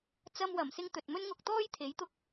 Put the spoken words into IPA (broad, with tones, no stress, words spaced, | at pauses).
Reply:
t͡sɐ˧mwɐ˨˩msɪ˧ŋ t̪ɵ˨t̚mɵ˥nŋʊ˧k̚t̪ɔː˥j t̪ʰe˨˥jt̪ʊ˧k̚